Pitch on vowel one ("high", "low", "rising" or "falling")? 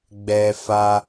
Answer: high